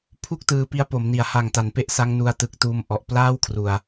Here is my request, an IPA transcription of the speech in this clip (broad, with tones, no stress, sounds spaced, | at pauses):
pʰ u˥˩ k̚ t ɯː˧ p i˦˥ a̯ p o˩˦ m n i˨˩ a̯ h a˨˩ ŋ t a˩˦ n p e˦˥ ʔ s a˦˥ ŋ n u˧ a̯ t ɯ˨˩ k̚ t uː˧ m ʔ ɔ˨˩ ʔ p l aː˥˩ w kʰ r u˨˩ a̯